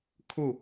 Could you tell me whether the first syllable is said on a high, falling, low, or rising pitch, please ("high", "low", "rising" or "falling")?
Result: falling